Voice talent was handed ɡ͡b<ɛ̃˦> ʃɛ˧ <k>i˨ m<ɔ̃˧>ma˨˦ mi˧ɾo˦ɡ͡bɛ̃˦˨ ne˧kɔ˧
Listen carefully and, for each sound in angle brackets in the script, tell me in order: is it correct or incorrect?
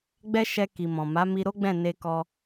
incorrect: ɛ˦, correct, incorrect: ɔ̃˨

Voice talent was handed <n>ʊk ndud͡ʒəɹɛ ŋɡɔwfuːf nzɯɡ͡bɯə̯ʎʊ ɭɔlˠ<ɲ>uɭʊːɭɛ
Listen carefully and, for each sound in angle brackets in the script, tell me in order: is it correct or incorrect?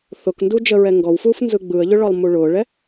incorrect: θ, incorrect: m

